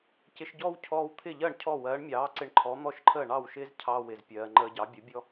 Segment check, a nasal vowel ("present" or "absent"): absent